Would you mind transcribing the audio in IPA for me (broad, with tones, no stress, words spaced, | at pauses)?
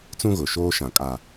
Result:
t͡sũ˦ɣʊ˨ ʃoː˦ʃã˨kʼa˨